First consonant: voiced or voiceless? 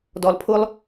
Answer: voiced